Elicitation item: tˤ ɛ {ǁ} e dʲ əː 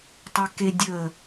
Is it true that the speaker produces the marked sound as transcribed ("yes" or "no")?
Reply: no